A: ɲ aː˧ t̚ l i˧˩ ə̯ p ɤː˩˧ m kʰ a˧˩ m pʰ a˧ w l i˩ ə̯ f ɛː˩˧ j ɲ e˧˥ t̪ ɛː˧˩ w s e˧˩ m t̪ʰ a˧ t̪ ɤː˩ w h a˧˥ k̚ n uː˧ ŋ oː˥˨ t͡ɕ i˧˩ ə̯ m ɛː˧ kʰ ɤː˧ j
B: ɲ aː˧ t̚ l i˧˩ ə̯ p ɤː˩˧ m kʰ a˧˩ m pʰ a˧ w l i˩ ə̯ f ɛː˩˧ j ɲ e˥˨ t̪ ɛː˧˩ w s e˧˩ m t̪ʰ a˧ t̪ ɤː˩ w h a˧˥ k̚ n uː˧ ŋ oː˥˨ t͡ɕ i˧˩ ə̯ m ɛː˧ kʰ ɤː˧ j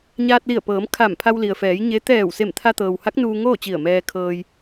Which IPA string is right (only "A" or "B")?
A